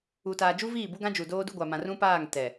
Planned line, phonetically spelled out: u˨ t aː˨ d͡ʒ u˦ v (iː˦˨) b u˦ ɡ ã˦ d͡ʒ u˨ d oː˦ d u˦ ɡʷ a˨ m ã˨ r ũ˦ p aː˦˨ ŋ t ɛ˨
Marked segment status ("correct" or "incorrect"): correct